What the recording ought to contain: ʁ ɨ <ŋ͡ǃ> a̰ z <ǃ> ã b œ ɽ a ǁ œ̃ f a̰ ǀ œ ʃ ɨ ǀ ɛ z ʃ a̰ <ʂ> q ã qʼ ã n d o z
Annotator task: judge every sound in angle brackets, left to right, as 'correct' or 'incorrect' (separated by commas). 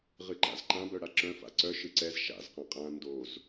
incorrect, correct, incorrect